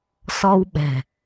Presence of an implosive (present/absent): present